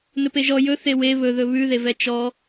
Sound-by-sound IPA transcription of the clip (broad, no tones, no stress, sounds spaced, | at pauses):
n ɵ p e ʒ ɔ j ɵ θ e w e β ɵ ð ɵ β ʉ ð e v ɛ t͡ʃ ɔ